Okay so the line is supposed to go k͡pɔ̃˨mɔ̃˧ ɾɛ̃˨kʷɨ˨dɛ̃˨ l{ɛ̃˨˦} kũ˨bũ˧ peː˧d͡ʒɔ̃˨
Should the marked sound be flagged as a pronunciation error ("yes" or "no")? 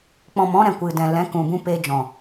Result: no